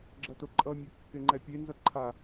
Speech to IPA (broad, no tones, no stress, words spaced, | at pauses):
ɡ͡ǁʌtoǃʼʌmʲa kːeŋ͡ǃɛpʲenzʌ ǃʰa